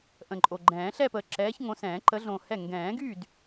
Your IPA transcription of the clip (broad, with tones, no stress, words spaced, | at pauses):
ʔə̃˨˩ǃʼo˨˩ɡ͡ǃɛ̃ː˨˩˦ ɬɛ˥˧pəː˨˩ǁɛː˨˦ç ŋõ˨˦sɛ̃ː˨˩˦ ǃə˨˦ɮõ˨˩hɛ˥˩ ŋɡɛ̃ː˨˩˦ɡy˥˩d